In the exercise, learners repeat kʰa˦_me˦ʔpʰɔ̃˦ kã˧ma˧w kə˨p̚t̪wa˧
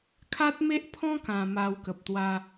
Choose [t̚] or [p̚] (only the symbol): t̚